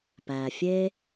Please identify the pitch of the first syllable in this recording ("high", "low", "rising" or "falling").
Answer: low